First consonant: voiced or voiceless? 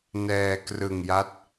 voiced